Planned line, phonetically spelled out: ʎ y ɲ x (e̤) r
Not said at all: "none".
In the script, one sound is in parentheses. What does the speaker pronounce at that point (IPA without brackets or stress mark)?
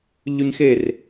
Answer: e